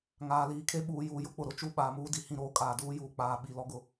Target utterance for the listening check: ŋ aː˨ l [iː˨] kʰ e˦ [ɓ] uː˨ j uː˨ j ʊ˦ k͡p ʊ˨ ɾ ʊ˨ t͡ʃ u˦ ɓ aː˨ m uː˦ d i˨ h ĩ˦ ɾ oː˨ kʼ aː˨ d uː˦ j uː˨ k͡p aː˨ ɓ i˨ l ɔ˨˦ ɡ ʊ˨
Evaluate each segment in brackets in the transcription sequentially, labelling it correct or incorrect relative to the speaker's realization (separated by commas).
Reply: correct, correct